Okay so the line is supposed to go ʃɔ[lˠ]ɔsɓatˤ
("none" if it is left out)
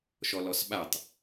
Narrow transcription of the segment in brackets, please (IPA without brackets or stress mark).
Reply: l